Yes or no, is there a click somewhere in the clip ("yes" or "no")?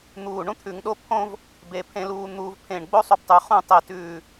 no